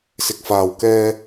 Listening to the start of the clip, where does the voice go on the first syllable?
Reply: low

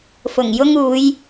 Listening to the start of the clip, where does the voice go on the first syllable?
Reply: low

